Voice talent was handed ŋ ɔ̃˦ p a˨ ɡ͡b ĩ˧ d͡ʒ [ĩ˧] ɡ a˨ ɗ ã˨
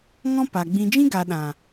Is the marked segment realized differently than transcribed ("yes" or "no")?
yes